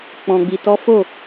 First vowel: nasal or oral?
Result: nasal